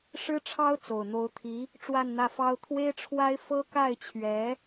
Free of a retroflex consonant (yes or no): no